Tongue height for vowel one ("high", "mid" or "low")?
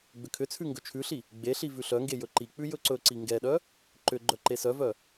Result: high